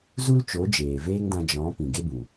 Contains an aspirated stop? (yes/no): no